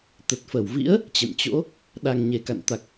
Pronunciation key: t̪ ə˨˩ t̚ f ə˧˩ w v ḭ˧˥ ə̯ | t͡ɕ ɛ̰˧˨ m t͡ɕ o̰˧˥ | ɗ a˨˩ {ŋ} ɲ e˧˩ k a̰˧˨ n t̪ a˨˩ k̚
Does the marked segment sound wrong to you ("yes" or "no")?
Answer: no